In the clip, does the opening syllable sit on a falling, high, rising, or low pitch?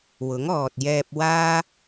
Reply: rising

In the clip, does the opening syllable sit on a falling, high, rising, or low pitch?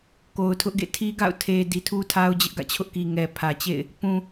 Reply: low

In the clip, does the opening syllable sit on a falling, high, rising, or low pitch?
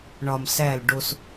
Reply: low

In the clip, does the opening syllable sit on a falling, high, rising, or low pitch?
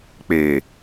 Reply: low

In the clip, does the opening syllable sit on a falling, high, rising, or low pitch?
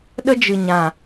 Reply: high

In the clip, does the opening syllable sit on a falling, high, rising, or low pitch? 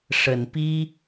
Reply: low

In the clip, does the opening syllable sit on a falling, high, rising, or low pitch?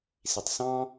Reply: low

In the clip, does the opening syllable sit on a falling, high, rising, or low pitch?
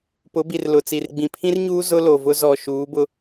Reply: rising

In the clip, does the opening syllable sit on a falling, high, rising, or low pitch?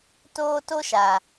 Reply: high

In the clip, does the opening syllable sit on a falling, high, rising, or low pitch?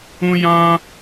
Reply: high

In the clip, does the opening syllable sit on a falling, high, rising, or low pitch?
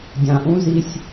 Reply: low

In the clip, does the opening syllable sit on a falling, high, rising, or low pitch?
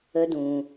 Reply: high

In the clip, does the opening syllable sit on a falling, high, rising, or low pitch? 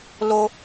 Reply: high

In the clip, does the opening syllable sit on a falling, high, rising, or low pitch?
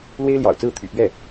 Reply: high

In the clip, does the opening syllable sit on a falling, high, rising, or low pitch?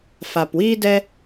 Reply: low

